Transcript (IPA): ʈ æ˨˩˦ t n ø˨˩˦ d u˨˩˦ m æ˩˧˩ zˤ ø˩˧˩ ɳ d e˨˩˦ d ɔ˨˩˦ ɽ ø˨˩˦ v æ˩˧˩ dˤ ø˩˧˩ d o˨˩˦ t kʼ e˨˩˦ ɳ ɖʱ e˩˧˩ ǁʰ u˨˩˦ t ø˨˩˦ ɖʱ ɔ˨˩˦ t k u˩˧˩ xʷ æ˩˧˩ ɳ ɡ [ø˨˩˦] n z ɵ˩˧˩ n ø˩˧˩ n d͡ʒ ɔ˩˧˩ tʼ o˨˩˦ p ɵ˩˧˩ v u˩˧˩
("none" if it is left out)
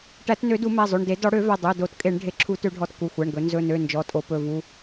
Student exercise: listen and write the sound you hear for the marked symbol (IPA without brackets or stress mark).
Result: ɵ˨˩˦